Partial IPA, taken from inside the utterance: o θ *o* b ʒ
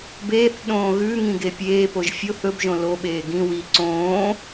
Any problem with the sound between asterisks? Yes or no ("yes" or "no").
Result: yes